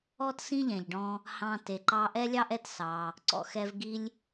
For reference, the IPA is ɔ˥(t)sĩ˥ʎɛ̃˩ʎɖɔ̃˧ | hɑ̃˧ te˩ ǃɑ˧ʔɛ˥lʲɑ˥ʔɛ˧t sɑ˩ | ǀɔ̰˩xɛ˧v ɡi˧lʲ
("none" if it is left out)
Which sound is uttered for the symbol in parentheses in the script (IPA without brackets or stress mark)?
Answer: t